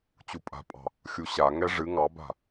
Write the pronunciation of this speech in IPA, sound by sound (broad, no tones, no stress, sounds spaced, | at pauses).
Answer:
t͡ɕ u pʼ a̤ pʼ ɑ̤ | xʲ u ɕ a ŋ ɛ ʐ ɨ ŋ ɑ b a̤